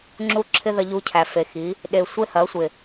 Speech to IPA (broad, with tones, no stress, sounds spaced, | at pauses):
ŋ͡ǁ u˦ ǁʰ ɪ˦ ð ɐ˧ ʎ u˧ cʰ æ˨ f e˨ x i˨˦ | ɗ e˨ sʷ e˦ h ɐ˨˦ sʷ ɪ˨